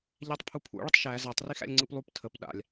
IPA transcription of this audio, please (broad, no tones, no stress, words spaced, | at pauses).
ʎætˤpʰupʰṵ ɭətˤʃæ zatˤ rixæ̰lʲŋ͡ǀɯplˠup tʰəp ɗa̰lʲ